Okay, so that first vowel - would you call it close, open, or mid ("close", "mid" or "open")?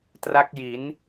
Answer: open